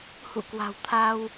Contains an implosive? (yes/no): no